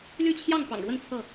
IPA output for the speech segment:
l y˥˨ t͡ɕʰ j ɑ˥˨ ŋ p ɑ̰˨˩ ŋ ɻ w ə˥˨ n t͡sʰ ɤ˥˨

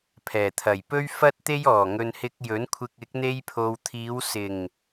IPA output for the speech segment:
pʰ ɛː˨˩ t̪ʰ ɐ˨˩ j p ɵ˥ ɥ f ɐ˥ t̚ t̪ e˥ j ɔː˨˩ ŋ ɵ˨ n h ɪ˧ k̚ j ɵ˨˥ n kʷʰ ɪ˧ k̚ ɪ˨˥ k̚ n̪ e˧ j pʰ o˨ w t̪ʰ iː˨˧ w s ɪ˨˩ ŋ

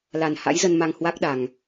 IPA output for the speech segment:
l a˨˩ n h a̰˧˥ j z ə˧ n m a˧ ŋ h w a˦˥ k̚ ɗ a˨˩ ŋ

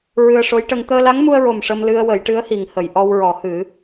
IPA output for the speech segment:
ɹ ɨ˧ ə̯ ʂ o˧˥ j ʈ ə˧ ŋ t̪ əː˧ l a˧˥ ŋ m u˧ ə̯ ɹ o˨˩ m ʂ ə˧ m l ɨ˧ ə̯ w ə˨˩˦ j ʈ ɨ˧˥ ə̯ h i˨˩˨ ŋ h ə˨˩˨ j ʔ ɔ˧ w ɹ ɔ˨˩˦ h ɨ˨˩˦

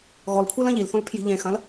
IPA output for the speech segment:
ɣ ɔ l kʷʰ e l ɐ̃ ʎ i l θ õ l pʰ j i̤ ʎ ẽ x ɐ̃ l

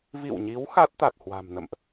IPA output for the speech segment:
v ḭ˧˨ w ɲ i˨˦ w x a˦˥ t̚ t̪ a˨˩ t̚ h w a̤˨˩ m n ə̰˧˨ m ʔ

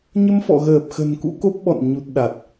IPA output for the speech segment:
ɲ ə˧ m f ɔ̰˧˨ ɣ əː˨˩ p̚ x ə̤˨˩ n k ṵ˧˥ k o˦˥ p̚ ɓ ɔ̰˧˨ n ɲ u˨˩ t̚ ɗ a˨˩ t̚

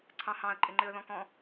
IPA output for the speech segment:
ǀʰ ɑ̃ h ɑ̃ ə̯ ǃʼ ɪ ŋ͡ǃ ɪ ə̯ ð ɔ̃ k ɔ̃

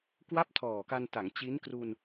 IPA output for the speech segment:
k w a˥˩ p̚ tʰ ɔː˨˩ k a˧ n t a˩˦ ŋ t͡ɕ i˦˥ n k r u˧ n

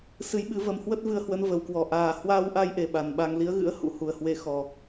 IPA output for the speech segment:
s ɨ˨˦ j ɓ ɨ˨˦ v ə˨˦ m h w ə˦˥ t̚ v ɨ˧ ə̯ h w ə˨˦ n v ə˨˩ w k w ɔ˧˩ ʔ aː˨˩ h w aː˧ w ʔ a˧ j ʔ e˨˩ ɓ a˨˩ n ɓ a˧ ŋ l i˨˦ ə̯ ɣ ɨ̰˧˥ ə̯ h ṵ˧˥ h u˨˩ ə̯ h w e˨˦ x ɔ˨˩

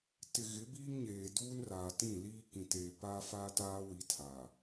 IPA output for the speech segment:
t ɪ˨ ɣ ɪ˨˦ b iː˦ ŋ ɲ eː˨ d uː˦ n r aː˨ t ĩ˦˨ l iː˦ k ĩ˨ t eː˨ p aː˦ f aː˦ t aː˦ w i˨˦ tʰ aː˨

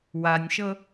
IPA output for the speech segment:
w a nʲ ʃ ɤ

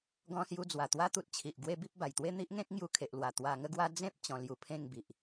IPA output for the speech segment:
ɡ ɔ̃˧ s j u˧ d͡z w a˨˩ t̪ w a˥˧ t̪ u˦ t̚ t͡ɕʰ i˨ ʔ ɡ w e˦ b i˦ p̚ b a˨˩ j t̪ w e˥˧ n̪ i˦ ʔ ŋ ẽ˦ k̚ ŋ j u˧ kʰ e˨ ʔ l w a˨˩ t̪ w a˧ ŋ ə˦ ɡ w a˦ d͡z ẽ˦ p̚ t͡ɕ ɔ̃˧ l j u˧ pʰ ẽ˥˧ ŋ b i˨ ʔ

